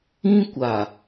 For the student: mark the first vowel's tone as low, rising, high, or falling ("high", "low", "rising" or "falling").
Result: high